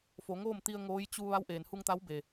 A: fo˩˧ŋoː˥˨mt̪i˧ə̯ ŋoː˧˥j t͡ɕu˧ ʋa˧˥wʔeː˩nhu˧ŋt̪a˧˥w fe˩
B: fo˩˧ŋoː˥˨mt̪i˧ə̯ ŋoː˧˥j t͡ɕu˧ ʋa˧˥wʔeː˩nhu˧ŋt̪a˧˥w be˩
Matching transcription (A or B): B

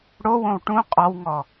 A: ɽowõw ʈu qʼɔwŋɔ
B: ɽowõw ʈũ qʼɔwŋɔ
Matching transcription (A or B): B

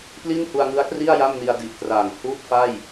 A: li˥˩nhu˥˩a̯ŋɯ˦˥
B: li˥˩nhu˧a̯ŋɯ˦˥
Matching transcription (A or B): B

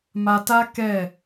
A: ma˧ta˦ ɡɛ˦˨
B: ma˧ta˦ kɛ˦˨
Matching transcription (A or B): B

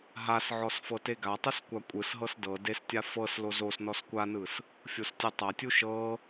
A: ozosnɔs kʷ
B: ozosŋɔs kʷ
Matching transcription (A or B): A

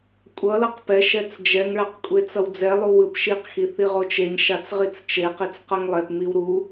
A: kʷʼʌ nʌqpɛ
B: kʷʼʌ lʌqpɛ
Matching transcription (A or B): B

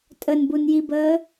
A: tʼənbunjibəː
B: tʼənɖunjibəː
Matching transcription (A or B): A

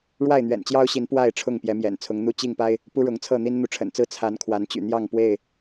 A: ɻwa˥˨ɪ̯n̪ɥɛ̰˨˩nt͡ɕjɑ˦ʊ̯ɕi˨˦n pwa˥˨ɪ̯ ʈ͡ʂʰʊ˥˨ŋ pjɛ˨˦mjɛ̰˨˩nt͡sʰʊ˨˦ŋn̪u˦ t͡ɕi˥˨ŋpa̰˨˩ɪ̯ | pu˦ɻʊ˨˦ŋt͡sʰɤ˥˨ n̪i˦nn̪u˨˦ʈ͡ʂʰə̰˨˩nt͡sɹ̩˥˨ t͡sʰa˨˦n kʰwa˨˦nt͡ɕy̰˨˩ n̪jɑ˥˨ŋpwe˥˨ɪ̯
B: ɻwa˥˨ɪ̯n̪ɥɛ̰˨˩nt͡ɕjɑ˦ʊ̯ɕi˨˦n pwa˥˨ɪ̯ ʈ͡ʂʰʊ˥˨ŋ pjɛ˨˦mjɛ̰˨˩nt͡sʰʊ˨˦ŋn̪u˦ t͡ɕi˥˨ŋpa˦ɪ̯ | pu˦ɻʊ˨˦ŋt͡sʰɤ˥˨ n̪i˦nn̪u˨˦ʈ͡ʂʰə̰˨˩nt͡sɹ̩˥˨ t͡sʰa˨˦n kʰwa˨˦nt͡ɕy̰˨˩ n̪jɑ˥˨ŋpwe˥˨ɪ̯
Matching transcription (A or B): B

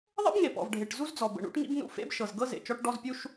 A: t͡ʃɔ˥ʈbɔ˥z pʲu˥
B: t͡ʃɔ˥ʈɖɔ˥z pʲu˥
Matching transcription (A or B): B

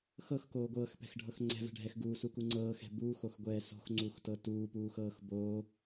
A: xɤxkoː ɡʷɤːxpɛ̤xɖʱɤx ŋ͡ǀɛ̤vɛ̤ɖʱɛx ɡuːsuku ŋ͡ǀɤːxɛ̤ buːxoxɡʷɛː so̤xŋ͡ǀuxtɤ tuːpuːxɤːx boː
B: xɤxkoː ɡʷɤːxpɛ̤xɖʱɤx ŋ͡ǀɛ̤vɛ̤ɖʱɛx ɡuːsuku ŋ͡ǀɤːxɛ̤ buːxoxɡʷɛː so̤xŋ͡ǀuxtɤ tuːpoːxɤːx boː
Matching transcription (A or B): A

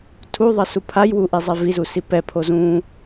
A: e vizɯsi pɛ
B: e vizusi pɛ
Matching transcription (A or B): B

